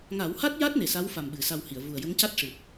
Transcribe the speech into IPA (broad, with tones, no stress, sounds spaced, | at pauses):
ŋ a˨˩˦ w h a˦˥ t̚ j a˦˥ t̚ n e˨˩ s a˧˥ w f a˨˩ m ɓ ɨ˨˩˦ s a˧ w h i˨˩˨ ə̯ v u˨˩ ə̯ j ə˧˥ ŋ c a˦˥ t̚ ʂ ɨ˨˩ t̚